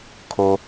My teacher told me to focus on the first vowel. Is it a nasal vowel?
no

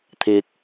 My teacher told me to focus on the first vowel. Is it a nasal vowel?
no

